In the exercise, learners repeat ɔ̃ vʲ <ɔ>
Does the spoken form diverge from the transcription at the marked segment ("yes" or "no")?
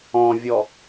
no